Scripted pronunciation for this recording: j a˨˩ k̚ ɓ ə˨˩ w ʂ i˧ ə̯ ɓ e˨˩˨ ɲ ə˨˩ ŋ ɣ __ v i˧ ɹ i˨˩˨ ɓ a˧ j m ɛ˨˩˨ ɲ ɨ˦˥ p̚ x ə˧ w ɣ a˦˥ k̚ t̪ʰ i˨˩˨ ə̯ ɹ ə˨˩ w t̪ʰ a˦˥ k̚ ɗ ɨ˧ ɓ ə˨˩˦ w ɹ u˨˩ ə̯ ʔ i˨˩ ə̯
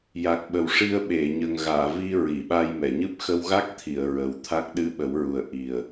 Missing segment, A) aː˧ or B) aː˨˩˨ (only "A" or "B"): B